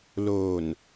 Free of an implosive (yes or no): yes